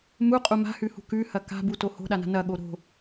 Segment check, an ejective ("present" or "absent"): present